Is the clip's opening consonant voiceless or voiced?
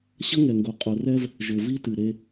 voiceless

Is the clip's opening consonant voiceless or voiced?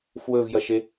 voiceless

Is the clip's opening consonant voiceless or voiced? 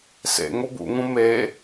voiceless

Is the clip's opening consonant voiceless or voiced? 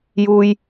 voiced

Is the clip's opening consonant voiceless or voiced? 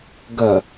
voiced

